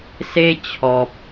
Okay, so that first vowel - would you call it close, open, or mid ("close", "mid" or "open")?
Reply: mid